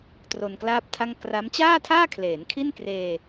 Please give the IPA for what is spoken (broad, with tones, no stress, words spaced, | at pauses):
tro˧nklaː˥˩p̚tʰa˥˩ŋ kra˦˥m t͡ɕaː˥˩tʰaː˥˩kʰleː˩˦n kʰi˥˩nkreː˧